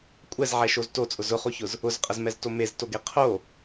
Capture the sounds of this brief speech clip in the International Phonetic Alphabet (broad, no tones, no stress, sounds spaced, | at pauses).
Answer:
kʷʼ ɛ z ʕ ɛ ʃ o z t o t͡sʼ ʊ z ʊ χ o ç ʊ z | ʊ z qʼ ə z m ɛ z t o m e z t o ɡ e qʰ o